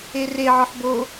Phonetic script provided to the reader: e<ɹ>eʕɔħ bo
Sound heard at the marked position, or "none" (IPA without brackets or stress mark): r